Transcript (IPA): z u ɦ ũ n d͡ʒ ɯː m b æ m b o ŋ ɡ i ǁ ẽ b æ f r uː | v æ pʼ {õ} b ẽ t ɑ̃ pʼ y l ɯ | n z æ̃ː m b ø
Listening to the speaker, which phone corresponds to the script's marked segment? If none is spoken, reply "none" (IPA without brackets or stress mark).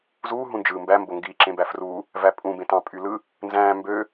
ũ